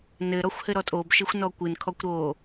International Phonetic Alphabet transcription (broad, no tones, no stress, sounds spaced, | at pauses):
n ɘ ɾ ɔ xʷ h ɘ ɾ ɔ tʼ o b ʃ ɘ xʷ n ɔ kʷ ɨ n kʰ ɔ kʷ ɾ o